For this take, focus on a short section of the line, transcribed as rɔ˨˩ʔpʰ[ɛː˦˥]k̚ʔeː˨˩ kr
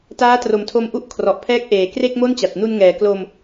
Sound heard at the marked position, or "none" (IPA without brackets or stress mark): ɛː˦˥